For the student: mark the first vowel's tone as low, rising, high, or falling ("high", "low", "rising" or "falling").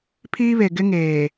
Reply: high